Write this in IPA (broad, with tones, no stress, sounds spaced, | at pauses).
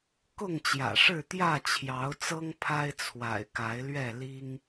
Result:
k ʊ˥˨ ŋ t͡ɕ j ä̰˨˩ ʂ ɻ̩˥˨ t̪ j ä˥˨ t͡ɕʰ j ɑ˨˦ ʊ̯ t͡s ɤ˦ ŋ pʰ a˦ ɪ̯ t͡sʰ w a̰˨˩ ɪ̯ k a˨˦ ɪ̯ l ɥ ɛ˥˨ l i˦ ŋ